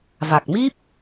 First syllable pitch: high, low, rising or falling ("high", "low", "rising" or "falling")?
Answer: low